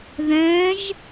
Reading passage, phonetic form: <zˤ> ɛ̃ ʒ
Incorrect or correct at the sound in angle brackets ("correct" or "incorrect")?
incorrect